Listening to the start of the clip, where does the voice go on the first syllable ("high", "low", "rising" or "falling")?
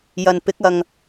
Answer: low